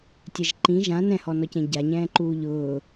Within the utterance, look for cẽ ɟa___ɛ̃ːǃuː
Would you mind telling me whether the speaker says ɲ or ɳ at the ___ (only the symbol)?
ɲ